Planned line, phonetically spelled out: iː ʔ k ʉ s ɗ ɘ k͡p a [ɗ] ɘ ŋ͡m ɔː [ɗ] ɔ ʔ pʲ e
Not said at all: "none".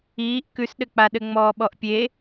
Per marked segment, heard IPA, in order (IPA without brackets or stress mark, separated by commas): ɗ, ɓ